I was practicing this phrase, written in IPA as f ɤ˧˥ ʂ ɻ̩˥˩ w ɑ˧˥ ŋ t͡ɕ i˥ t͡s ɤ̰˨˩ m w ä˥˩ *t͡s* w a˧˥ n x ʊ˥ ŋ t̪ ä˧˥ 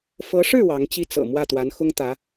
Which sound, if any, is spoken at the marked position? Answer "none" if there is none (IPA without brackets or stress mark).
t̪